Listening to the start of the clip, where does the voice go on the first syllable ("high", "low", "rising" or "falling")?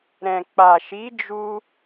low